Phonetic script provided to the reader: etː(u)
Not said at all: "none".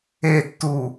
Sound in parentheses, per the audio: u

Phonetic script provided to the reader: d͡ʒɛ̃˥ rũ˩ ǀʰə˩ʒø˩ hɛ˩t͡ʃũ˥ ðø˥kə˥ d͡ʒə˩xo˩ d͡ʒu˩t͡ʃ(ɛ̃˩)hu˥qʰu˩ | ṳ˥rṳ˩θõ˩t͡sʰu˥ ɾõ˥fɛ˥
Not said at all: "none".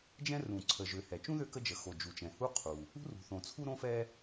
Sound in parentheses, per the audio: ɛ̃˩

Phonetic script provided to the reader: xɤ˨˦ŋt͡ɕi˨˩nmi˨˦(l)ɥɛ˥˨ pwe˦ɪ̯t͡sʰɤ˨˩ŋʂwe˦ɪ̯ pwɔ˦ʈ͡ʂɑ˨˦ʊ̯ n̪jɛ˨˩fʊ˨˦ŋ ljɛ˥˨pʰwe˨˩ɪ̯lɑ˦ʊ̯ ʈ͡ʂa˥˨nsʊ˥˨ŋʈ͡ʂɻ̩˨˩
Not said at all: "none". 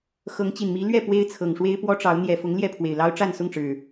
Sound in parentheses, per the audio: l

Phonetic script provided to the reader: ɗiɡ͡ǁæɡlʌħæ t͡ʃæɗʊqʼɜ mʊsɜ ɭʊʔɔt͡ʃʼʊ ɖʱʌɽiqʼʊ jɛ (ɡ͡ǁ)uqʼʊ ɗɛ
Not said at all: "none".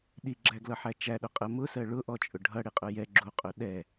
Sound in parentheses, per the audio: ɡ͡ǁ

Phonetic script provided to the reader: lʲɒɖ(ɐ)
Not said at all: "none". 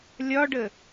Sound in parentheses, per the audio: ə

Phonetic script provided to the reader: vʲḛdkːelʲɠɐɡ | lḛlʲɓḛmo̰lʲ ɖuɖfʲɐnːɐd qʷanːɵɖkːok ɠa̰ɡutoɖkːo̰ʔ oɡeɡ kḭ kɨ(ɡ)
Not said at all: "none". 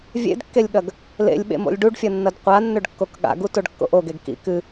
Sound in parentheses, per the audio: none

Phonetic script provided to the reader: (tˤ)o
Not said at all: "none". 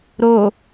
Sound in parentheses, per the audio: ɾ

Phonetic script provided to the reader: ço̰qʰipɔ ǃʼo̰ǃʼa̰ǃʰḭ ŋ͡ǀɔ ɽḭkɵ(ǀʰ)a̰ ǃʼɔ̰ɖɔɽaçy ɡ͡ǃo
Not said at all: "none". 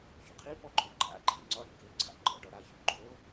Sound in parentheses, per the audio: ǀʰ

